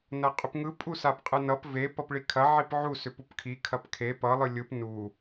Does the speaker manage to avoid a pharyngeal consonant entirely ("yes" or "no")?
no